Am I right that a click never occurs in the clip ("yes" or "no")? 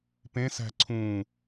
no